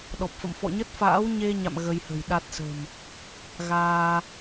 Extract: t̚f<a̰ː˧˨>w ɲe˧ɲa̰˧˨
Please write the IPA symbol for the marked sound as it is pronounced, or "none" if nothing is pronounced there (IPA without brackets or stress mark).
a̰ː˧˥